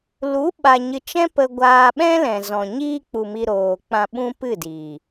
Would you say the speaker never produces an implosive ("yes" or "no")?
no